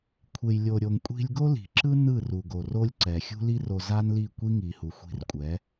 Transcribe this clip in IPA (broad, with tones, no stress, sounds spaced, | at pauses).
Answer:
kʷʰ e˨ j lʲ o˨ ɾʲ o˨ ŋ kʷʼ i̤˧ lʲ ɡ o˦ l i̤˨ ǁ ɯ˦ n ɯ˦˨ r u˨ ɡ o˨ r o˦ lʲ ǀ ɛ˨ xʲ ṳ˦ l i˦ r o˧ z a˦ n l i˦˨ kʷ i˦ ŋ i˨ h u˨ xʷ i̤˧ r kʷʼ ɛ˨˦